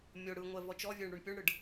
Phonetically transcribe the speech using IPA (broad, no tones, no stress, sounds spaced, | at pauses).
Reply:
mʲ o ɽ ɯ ŋʷ ɛ v ɔ t͡ʃ ɔ vʲ e ɳ ɽ u ɳ pʲ o ɳ ɽ ɯ ɖ